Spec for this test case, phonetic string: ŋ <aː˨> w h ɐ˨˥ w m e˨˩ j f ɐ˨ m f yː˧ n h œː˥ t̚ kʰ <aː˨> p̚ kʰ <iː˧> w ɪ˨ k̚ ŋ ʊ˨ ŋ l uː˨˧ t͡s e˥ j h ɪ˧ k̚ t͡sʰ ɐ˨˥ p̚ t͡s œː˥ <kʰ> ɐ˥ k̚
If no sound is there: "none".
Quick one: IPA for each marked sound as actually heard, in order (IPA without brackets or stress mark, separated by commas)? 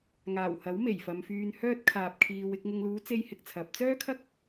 aː˨˩, aː˨, iː˨, kʰ